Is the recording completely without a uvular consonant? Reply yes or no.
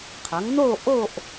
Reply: no